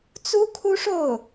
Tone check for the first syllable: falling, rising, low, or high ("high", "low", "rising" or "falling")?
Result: high